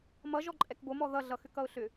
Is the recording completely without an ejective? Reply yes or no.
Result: no